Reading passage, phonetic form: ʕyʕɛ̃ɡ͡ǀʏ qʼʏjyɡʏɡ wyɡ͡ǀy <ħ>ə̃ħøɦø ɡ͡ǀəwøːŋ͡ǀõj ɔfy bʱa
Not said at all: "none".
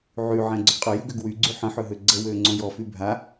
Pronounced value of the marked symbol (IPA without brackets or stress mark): ħ